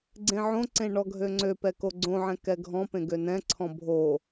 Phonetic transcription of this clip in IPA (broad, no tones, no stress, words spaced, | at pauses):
ɡ͡ǀẽʕõǀẽ ɳɔɡʱøŋ͡ǀøpɛ koɡ͡ǀõʕɛ̃ kɛɡʱɔ̃pẽ ɡønɛ̃ǀʰɔ̃ bʱo